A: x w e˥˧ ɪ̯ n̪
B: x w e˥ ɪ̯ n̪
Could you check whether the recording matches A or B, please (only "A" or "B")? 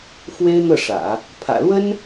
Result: B